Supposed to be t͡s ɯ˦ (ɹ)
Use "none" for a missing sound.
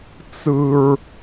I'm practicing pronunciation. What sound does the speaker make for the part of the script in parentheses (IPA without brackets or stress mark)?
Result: ɹ